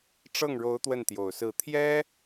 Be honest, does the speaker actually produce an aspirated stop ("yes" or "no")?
yes